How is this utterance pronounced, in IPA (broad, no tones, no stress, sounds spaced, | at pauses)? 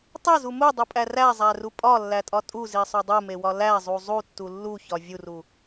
tˤ e z u m u dˤ u pʼ æ r æ zˤ æ r u pʼ ɒ lː æ tʼ ɒ tʼ u z i sˤ o dˤ u m e w ɒ l æ zˤ u zˤ u tː u lː u ç ɒ vʲ u r u